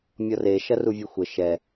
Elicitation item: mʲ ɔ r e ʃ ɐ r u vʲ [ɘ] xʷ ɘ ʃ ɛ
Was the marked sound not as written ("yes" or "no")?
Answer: no